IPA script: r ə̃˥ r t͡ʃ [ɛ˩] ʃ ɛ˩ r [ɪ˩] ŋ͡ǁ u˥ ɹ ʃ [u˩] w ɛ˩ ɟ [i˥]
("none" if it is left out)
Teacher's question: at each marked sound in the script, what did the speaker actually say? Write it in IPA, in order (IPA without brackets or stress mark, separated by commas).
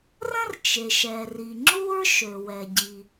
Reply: e˩, i˩, ø˩, i˩